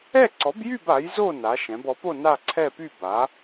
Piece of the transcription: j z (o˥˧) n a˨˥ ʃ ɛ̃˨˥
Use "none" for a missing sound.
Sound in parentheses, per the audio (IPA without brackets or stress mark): o˥˧